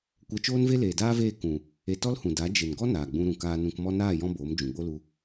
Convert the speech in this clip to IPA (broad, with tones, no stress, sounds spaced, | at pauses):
kʷ ɛ˧ t͡ʃ oː˦ n v e˦ l eː˨ d aː˦ v eː˦˨ k ũ˨ | e˧ t ɔ˦ l h ũ˨ d a˨˦ d͡ʒ e˨ n ɡ ɔ˦ n aː˨ ɡ͡b ũ˧ ɾ ũ˨ k aː˧ n ũ˧ k m ɔ˧ n aː˦˨ j ɔ̃˧ b oː˨˦ m d͡ʒ ũ˨ ɡ͡b o˦ l u˧